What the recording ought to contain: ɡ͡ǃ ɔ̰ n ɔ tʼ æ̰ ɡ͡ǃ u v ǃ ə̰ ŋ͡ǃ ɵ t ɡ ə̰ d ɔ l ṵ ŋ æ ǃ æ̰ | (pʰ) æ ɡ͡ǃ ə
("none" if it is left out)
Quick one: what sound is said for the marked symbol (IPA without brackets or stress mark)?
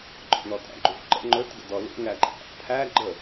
pʰ